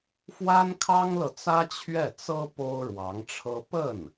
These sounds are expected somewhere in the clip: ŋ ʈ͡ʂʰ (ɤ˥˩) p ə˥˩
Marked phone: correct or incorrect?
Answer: incorrect